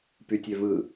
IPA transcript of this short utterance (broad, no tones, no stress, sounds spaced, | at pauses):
p y tʲ ø v ɯ